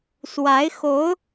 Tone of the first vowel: rising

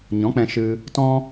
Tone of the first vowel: rising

